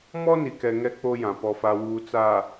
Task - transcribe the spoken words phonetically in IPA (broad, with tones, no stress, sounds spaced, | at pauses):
m ɔ˦ n i˨ k ɛ˨ ŋ ɛ˦ k͡p o˦ j ã˨ p ɔ˨ f a˨ w uː˨ t͡s a˨